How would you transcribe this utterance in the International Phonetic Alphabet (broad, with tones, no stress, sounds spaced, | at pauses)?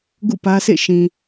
ɡ ṵ˦˨ p ä˦ sʰ ḛ˦˨ ʃ ĩ˨